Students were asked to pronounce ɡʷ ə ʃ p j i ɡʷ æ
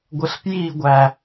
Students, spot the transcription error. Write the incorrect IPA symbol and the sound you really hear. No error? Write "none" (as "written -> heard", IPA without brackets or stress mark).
ʃ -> ɬ